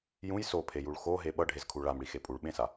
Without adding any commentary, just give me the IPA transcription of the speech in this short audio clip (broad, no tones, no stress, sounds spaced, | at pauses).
j ũ j s o pʰ e j u ɭ x o ɦ e ɓ ʌ ɖʱ e z kʰ u ɭ a m ɽ i x e pʼ u ɭ ɓ ẽ s a